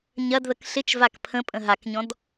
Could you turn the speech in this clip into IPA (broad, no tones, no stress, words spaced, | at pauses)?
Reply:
ɲɐdðək ɬɪt͡ʃvak pʰə̃pʼə̃ ɦakɲɔ̃d